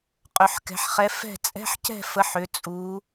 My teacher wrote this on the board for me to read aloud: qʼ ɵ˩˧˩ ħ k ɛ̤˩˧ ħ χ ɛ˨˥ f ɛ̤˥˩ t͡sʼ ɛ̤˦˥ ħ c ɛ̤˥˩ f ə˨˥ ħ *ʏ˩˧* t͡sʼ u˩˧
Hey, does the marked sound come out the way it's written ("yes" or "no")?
yes